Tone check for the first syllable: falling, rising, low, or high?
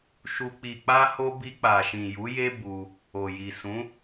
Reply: low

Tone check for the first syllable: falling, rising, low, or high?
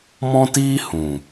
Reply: high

